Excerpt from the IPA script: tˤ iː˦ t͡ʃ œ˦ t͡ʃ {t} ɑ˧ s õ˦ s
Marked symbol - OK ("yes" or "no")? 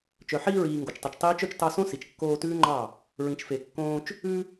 yes